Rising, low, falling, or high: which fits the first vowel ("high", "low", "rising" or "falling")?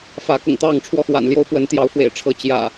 rising